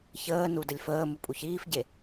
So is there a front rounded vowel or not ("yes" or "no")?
no